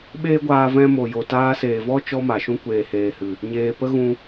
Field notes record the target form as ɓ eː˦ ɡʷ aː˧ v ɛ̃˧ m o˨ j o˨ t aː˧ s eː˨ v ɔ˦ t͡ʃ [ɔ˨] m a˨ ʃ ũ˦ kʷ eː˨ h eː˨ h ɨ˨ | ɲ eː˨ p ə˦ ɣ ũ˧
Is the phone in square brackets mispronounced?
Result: yes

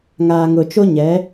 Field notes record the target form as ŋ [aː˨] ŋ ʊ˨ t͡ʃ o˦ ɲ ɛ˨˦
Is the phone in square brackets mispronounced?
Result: no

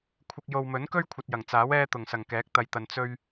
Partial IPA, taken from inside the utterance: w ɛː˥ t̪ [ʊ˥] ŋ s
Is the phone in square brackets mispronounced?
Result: yes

